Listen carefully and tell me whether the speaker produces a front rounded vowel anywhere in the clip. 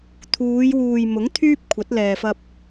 yes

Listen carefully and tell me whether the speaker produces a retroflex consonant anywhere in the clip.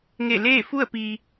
no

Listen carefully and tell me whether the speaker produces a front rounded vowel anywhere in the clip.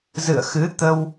no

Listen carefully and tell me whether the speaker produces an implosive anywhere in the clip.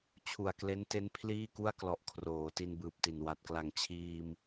no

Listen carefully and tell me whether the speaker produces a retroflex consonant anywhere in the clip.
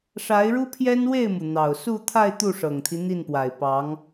yes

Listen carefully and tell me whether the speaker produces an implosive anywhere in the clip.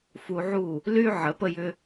no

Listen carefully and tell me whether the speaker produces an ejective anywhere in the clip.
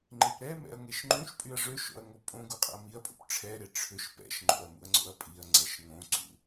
yes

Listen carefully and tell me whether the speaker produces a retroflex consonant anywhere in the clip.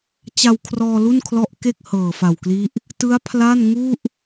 no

